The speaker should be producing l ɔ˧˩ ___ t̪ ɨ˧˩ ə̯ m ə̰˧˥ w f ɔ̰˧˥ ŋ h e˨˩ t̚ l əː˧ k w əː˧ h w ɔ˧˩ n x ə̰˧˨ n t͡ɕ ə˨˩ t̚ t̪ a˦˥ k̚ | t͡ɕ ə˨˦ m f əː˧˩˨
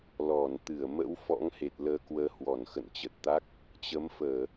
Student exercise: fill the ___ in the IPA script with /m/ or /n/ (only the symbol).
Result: n